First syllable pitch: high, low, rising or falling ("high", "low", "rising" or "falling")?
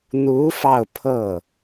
rising